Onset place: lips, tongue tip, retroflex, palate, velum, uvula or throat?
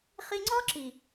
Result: uvula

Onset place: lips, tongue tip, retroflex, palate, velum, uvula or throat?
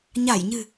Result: palate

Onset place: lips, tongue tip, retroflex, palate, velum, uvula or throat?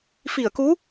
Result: lips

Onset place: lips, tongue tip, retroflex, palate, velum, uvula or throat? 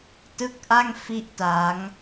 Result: tongue tip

